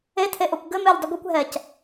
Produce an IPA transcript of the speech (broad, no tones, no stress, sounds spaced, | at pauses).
e tʰ e ʔ o kʷ ɡ ɘ m e ʎ dˤ ɘ ɡʷ e kʷ ɦ ɛ c